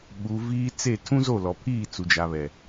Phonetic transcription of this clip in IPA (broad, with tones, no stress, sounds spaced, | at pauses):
ɓ u˨ v iː˦ t͡s e˦˨ tʰ ũ˦ z o˦˨ l ɔ˨ pʰ iː˦˨ t͡s u˨ d͡ʒ a˨ β ɛ˨